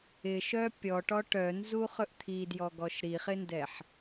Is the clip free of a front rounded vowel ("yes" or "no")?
no